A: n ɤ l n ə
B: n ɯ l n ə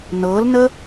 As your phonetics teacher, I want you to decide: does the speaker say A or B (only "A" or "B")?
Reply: A